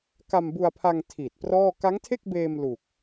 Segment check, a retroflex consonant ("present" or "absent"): absent